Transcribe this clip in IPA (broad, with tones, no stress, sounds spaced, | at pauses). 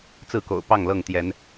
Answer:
t͡s ɹ̩˥˨ k o̰˨˩ ʊ̯ p ɑ˥˨ ŋ l ɤ˥˨ ŋ t̪ j ɛ˨˦ n